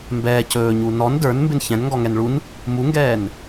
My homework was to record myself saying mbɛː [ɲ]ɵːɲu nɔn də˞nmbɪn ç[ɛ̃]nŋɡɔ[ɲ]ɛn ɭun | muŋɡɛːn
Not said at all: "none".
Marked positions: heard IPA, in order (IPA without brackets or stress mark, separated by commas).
c, ɛ̃, ŋ